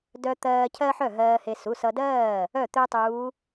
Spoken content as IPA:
d œ˧ t̪ ɜː˧ cʰ ɜ˥ ħ œ˥˩ ɦ ɜː˧ h e˧ s u˩˧˩ s ʌ˧ d ɜː˥˩ | œ˥˩ t̪ ø˥ tˤ uː˧˥

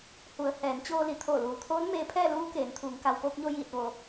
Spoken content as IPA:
h u˩˧ ə̯ h ɛː˩˧ n t͡ɕ oː˧ l i˩˧ t̪ʰ oː˧˩ l uː˩ t̪ʰ oː˧˥ n m eː˧ pʰ ɛː˥˨ l uː˧˥ k eː˩˧ n t̪ʰ uː˩˧ ŋ k a˩ w p oː˧ k̚ ɲ o˧ j iː˧˩ t̚ ʋ o˧

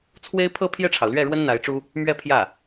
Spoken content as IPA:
t͡sʰ w e˥ ɪ̯ pʰ ɤ˥˧ pʰ j ɛ˥˩ ʈ͡ʂʰ ɑ˩ ʊ̯ l ɥ ɛ˥˩ ɻ w ə˥ n n̪ a˧˥ ɪ̯ ʈ͡ʂ u˥ | m ɥ ɛ˥˧ pʰ j ä˥˩

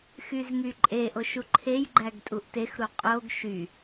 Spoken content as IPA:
x y z ŋ y ǃʼ e ʔ o ʃ u ǃʰ e j ɡ͡ǃ æ ɡ tʼ u ʔ t e x ɾ u qʼ o ɡ ʃ y

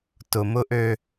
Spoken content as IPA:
t ʊ˨ m ʊ˦ ʔ ø˦

